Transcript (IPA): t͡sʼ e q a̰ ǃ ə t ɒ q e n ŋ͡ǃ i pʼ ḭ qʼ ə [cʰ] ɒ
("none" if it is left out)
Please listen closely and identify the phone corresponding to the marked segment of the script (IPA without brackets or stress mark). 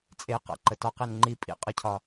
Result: cʰ